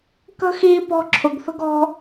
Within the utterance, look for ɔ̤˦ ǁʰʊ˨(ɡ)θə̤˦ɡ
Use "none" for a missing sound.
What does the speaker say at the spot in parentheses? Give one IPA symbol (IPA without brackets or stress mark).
ɡ